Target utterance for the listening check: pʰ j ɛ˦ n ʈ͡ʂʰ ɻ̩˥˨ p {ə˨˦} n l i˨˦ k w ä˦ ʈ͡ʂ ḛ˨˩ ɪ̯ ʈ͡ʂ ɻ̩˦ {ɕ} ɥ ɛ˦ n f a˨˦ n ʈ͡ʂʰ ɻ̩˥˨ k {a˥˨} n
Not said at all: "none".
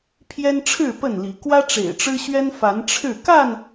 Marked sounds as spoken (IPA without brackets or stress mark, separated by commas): ə˥˨, ɕ, a˥˨